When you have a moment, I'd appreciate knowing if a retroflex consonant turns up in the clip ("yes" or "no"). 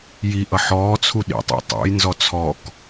no